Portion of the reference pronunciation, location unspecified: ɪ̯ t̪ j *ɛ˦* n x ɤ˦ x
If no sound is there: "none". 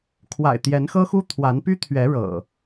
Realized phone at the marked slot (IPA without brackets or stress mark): ɛ˨˦